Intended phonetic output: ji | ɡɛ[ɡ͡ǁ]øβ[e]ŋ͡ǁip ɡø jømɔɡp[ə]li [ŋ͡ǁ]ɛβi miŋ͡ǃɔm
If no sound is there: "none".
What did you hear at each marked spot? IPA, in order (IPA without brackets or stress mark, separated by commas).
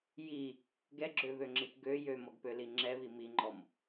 ɡ͡ǁ, ø, ø, ŋ͡ǁ